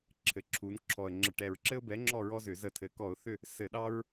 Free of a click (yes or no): no